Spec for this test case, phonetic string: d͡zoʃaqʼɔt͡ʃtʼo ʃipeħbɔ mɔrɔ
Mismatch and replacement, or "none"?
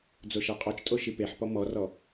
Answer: b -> p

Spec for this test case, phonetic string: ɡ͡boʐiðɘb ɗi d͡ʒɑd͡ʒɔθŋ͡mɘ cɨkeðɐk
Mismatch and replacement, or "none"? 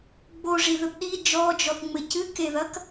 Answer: ɑ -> ɔ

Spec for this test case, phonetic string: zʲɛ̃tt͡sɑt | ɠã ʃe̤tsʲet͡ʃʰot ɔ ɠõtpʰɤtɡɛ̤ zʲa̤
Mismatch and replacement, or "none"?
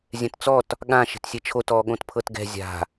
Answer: ɑ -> ɔ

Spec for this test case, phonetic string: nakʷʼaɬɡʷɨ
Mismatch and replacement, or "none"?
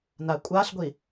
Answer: ɨ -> i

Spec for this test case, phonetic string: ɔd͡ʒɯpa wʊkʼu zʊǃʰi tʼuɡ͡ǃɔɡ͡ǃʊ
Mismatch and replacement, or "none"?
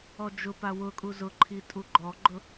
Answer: ɯ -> ʊ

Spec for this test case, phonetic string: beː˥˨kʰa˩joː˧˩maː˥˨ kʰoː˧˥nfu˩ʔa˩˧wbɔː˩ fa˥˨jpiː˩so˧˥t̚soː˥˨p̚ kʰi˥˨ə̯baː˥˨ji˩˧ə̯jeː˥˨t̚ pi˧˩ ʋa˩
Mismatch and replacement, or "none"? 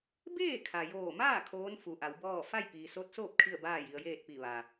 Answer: ɔː˩ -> ɔː˥˨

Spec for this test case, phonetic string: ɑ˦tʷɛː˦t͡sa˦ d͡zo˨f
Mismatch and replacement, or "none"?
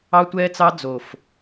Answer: a˦ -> ɑ˦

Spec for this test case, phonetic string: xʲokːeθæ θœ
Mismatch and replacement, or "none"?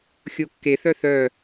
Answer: æ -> œ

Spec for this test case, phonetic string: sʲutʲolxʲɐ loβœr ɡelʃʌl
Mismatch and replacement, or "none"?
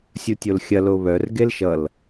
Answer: none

